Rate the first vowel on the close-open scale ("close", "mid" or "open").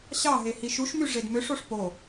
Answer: open